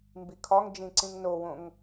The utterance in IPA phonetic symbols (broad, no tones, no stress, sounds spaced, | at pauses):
m b i kʰ ɒ ŋ d͡ʒ ĩ ǀ ĩ ŋ n o w õ ŋ